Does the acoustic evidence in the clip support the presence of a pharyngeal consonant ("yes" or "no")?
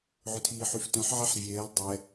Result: yes